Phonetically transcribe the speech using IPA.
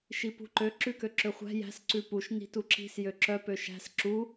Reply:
ʃipṳǃø ǁʉkøǁøχʷæ̤ jæ̤s ǀʉpuʃ ni̤tuǁi̤s jøǁœ pøʃæ̤s ǁu

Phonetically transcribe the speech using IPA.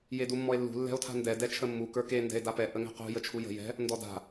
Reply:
jedumːɔe̯lːṳ lːɛ̤o̯tʰa̤ndɛ dɛt͡ʃʰəmːu kə˞ke ndɛ̤e̯dapɛ ʔəŋɛ̤qṳ jət͡ʃʰujə̤ jɛ̤ | ndɔda̤

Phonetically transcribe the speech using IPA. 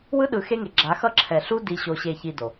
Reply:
wɯ˦ɗɯ˨ xe˦ŋe˨ ɡ͡ǁa˨˦xʌ˦ ǁʰɛ˨ɬu˦ di˨ɕo˨ɕe˨çi˨ do˨

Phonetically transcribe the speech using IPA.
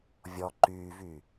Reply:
vʲɔ ǃyːvyː

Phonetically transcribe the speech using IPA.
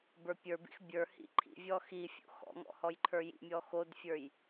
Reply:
bə˞pʲə˞bḭx bʲə˞ hḭǃʰḭvʲɔ xi fʲo̰xɔ̰ŋɔ̰ hɔjǃʰə˞jḭmʲɔ xodfʲə˞j

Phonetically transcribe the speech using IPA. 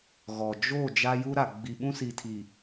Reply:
ɣɔ˨ d͡ʒo˦˨ d͡ʒa˦ju˦ɾa˨ ɡ͡bi˨ɓũ˦si˨tʰi˨

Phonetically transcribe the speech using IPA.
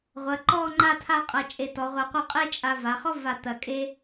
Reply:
ʁʷɐ˩˧ǃɔ˥˧ ŋ͡ǃa˥˧tʰa˥˧qʼɐ˧ t͡ʃʼe˧˩tɔ˩˧ʁʷa˧qʷɐ˥˧ qʼe˥t͡ʃʼa˧va˩˧ χɔ˥va˧˩ t̪ɐ˧˩kʼe˥

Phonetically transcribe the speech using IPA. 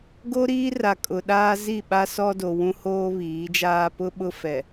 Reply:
ɡo˦ɾiː˦ra˨ kʼʊ˨ɗaː˦ zi˦˨ɓa˦ sɔ˦do˨ wũ˦hoː˦βiː˨˦d͡ʒaː˦ pʊ˦ɓʊ˦fɛ˨

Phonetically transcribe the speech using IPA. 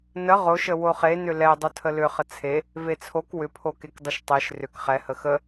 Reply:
nə ʁoʃə woχenʏ lɛ dˤotʰəlʏχə t͡sʰe | vet͡sʰok wʏpʰokek dˤəʃtˤeʃ rʏk χɛhə xə

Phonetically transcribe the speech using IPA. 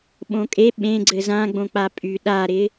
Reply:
ɓõkʼe ɓẽɡ͡ǀɘ zãɡ͡bõ k͡papʼy ɗaɾɪ

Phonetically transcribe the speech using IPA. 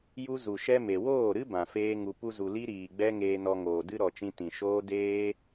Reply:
ju˦ zu˨ʃɛ˦me˨ woː˦˨ɾɨ˦ bã˨feː˦ŋu˧ pu˧zu˨ li˦ɾiː˨ɡ͡bɛ˦ ŋeː˧nɔ˧ ŋoː˨dɨ˦ɾɔ˨t͡ʃĩ˧ tĩ˨ʃoː˦ deː˦

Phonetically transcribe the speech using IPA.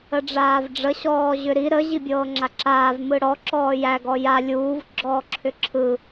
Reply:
əɖ͡ʐaːvɖ͡ʐə ɕɔːʑʏɾi ɾə ʑibʲɤːŋ͡ǁaǁaːv mɯɽɔ ǁɔːjæ ɡɔja lʲuːv ɡ͡ǁɔːǁʰʏǁʰɯ

